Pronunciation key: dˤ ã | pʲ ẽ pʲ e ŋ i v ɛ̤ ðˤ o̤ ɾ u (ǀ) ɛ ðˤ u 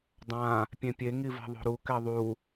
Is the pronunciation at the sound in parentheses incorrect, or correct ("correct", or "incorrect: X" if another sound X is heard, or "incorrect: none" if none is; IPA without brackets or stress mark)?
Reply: incorrect: k